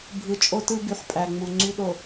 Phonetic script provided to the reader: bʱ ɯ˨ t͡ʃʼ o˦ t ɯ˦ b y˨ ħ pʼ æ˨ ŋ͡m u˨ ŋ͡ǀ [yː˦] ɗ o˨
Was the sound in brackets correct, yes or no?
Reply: no